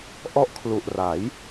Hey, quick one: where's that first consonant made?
throat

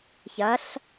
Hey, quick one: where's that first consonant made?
palate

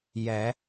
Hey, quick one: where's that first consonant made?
palate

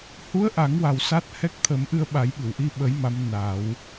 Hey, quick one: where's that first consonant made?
throat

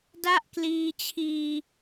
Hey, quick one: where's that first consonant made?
tongue tip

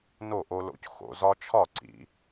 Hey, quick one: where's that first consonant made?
tongue tip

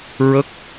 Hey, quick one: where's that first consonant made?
tongue tip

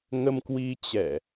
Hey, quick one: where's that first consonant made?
velum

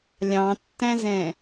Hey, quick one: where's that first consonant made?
tongue tip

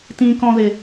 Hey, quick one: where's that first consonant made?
tongue tip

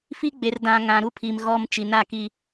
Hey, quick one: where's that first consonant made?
lips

